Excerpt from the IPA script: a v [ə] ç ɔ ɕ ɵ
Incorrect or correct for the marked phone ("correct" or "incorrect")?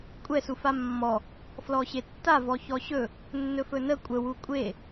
incorrect